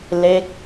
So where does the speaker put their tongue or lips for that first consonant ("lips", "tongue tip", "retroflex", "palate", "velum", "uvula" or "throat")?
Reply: tongue tip